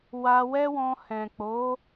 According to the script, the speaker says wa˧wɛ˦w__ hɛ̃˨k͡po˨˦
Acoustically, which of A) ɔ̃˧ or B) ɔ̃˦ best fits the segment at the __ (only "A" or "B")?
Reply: A